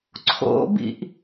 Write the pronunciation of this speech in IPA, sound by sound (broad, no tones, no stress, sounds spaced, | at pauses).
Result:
ǀʰ o̰ b ḭ ʔ